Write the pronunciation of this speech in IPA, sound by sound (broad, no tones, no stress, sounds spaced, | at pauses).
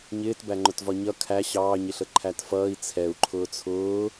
ɲ ɪː t b æ ŋ͡ǃ ʊ t v ɒ ɲ ʌ kʰ æ ɕ ɑː ɲ ɪ ɬ ə ǃʰ æ t f ʌː i̯ t͡sʰ ɛ u̯ ǃʰ ʊː t͡sʰ ʊː